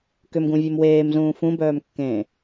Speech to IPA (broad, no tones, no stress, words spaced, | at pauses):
kʏmɡũvʲum weːm zũːfũbœːmkːẽː